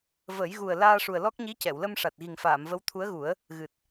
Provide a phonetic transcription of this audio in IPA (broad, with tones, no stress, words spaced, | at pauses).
və˨˩˦jɣu˨˩ə̯ laː˧ʂu˨˩ə̯lɔ˦˥k̚ ɲi˧˥cɛ˨˩˨wlə˧m ʂa˨˩t̚ɣi˨˩ŋfaː˨˩˨mvə˧˥w t̪ʰu˧˥ə̯ɣu˨˩˦ə̯ | ɣɨ˨˩t̚